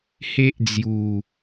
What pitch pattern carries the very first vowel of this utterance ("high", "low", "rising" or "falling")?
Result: high